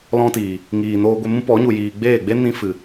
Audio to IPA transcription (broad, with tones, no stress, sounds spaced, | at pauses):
l ɔ̃˧ t iː˨ | ŋ iː˨ n oː˧ ɡʷ e˧ m ũ˦ p ɔ˨˦ ɲ u˨ j iː˨ ɡ͡b eː˦˨ ɡ͡b e˦ n ĩ˧ f ɨ˨